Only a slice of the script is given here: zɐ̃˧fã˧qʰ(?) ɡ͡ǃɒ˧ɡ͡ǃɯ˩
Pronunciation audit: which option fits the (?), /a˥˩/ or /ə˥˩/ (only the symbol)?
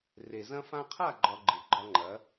a˥˩